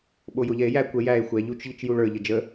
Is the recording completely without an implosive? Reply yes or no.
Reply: no